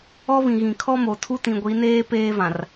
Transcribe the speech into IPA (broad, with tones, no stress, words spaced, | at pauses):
ɔ˦ βĩ˨ɣĩ˨kʰɔ˦mo˨ tʰu˦tĩ˨ɡʷi˨˦neː˦ peː˦vã˨r